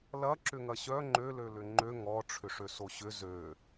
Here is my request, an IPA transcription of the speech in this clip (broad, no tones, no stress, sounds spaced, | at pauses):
l ɐ ǁ ʏ ŋ ɐ ɕ œ ŋ͡ǃ ø l ø l ʏ ŋ͡ǃ ø ŋ ɔ ʈ͡ʂʰ ʏ ʂ ø s o ɕ ʏ z ø